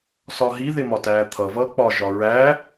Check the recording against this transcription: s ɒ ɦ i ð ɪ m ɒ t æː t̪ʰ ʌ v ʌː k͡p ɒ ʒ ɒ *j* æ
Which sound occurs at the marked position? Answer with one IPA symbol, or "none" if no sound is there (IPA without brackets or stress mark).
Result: ɹ